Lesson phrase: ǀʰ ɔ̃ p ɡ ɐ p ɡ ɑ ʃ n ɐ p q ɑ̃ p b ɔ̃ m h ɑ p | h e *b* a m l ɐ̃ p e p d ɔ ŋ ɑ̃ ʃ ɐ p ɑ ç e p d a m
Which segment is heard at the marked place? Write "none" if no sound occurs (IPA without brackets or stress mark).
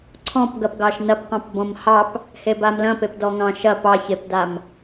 b